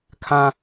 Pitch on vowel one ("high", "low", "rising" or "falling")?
high